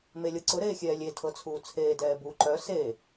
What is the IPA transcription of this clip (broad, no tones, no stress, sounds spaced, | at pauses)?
m e lʲ ɤ ǀ ʊ ɾ eː xʲ ɛː lʲ e tʰ ɤ t͡sʰ uː t͡sʰ eː d ɛː b u ǃ œ s e